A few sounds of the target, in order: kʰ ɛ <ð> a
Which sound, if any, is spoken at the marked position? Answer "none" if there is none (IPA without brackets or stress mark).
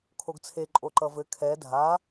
dʱ